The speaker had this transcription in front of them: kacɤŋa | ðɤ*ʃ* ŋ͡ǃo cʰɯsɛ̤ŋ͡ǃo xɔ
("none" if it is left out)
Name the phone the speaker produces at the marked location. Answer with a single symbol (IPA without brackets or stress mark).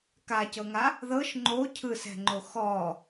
ʃ